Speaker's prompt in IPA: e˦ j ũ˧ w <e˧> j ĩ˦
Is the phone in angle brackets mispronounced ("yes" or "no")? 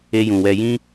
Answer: yes